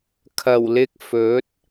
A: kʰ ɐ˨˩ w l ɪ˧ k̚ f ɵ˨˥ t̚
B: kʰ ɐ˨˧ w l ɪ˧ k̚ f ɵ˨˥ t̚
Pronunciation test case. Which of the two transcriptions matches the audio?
A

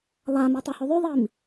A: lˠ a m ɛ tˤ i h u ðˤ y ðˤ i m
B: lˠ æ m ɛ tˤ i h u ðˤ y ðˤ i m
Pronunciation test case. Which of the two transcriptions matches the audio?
A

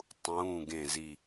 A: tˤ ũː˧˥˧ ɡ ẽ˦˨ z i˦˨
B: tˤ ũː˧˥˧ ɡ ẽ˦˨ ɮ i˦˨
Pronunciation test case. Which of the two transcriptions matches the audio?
A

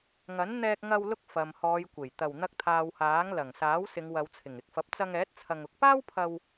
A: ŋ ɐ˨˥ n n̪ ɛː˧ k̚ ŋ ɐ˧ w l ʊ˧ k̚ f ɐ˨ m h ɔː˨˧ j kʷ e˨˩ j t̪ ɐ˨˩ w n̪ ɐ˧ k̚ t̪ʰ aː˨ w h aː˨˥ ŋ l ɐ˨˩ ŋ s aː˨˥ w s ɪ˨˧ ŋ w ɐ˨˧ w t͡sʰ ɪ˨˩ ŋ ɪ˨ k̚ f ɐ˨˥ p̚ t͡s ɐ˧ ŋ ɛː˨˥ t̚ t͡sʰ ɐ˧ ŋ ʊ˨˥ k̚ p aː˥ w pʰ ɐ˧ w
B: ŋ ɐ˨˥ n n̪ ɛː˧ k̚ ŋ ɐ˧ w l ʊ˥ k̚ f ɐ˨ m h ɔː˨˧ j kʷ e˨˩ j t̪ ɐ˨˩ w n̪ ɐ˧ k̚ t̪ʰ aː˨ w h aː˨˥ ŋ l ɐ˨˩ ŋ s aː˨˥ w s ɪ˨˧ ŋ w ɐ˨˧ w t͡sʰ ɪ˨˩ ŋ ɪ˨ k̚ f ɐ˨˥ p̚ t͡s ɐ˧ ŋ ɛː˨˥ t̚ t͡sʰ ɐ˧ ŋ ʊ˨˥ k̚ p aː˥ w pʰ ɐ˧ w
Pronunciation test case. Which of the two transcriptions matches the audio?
A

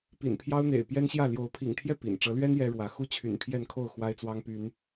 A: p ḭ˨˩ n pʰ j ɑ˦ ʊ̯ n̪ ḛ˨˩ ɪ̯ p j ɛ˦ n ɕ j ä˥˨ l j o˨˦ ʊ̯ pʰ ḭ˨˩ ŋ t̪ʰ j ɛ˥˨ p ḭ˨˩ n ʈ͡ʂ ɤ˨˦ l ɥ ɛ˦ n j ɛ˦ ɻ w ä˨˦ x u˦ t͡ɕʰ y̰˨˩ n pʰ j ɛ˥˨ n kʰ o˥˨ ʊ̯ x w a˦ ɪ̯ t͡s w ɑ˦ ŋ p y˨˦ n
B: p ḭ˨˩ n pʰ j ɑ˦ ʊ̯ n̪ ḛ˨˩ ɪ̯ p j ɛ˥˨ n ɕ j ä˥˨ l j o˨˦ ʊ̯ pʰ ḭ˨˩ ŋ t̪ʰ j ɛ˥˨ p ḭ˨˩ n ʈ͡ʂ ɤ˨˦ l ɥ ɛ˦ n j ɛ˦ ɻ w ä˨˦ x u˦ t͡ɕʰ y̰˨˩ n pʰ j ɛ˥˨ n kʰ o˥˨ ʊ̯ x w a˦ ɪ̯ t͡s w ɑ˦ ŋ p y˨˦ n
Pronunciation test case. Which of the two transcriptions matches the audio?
A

